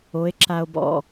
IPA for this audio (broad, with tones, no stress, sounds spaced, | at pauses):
o˨˦ e̯ ǁ a˨ o̯ b ɔ̰˨